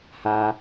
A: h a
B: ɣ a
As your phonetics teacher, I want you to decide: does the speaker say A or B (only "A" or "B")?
A